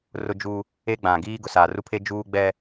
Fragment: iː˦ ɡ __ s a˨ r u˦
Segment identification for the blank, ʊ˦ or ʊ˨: ʊ˨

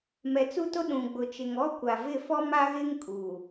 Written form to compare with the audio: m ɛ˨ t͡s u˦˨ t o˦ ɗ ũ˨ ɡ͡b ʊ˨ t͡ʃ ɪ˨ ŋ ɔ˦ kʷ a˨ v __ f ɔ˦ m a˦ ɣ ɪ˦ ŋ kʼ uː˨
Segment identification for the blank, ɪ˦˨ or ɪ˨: ɪ˦˨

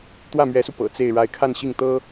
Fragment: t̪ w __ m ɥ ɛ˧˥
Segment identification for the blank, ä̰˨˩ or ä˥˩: ä˥˩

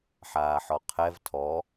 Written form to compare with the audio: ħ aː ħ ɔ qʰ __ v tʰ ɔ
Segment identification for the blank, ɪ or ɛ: ɛ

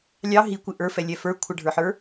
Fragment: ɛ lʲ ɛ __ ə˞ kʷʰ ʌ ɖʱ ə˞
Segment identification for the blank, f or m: f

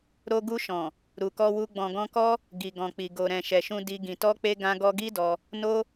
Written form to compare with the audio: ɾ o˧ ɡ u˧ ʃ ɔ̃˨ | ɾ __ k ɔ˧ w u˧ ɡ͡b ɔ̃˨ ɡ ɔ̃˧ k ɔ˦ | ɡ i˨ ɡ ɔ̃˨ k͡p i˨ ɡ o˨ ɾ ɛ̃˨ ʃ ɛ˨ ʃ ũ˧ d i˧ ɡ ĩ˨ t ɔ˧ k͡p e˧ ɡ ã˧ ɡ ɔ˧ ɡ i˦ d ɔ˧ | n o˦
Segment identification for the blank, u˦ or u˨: u˨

